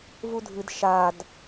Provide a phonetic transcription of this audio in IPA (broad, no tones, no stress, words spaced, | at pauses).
vudʱɨd ʃad